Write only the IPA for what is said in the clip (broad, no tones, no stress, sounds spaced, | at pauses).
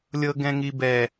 lʲ ɤ ɡ ɛ̃ ŋ i b ɛ